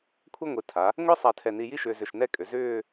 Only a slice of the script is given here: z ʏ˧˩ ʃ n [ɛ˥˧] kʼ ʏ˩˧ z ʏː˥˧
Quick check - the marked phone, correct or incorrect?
correct